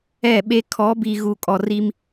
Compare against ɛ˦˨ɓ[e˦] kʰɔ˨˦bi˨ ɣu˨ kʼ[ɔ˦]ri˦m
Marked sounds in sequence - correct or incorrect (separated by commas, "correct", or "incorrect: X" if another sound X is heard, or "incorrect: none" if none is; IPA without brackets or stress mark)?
correct, incorrect: ɔ˨